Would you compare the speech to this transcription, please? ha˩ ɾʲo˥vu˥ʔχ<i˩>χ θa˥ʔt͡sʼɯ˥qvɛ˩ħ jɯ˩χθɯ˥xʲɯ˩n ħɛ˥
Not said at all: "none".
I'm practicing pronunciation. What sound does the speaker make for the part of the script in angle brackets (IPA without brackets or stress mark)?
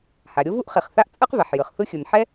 i˩